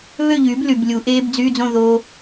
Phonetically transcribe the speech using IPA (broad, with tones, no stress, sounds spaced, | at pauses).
β ø˥˨ ʎ yː˩˥ b l y˨˩ b lʲ u˩˧ ʔ eː˦˥ b d͡z yː˧˥˧ d͡z õ˥˨ ð oː˦˥